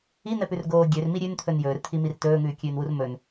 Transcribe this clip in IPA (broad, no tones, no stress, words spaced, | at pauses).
in̪ɛpʉrɡoː ɡʲørmi ɾʲʉnt̪ʰɵn jɵːrt̪ʰimir tɵːŋʉːkʲʉːnwur mɵn